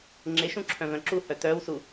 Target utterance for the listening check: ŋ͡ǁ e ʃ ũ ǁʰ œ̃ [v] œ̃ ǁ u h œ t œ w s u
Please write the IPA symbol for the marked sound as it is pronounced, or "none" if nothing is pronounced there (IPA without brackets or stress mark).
v